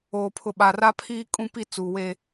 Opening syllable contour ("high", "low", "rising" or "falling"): low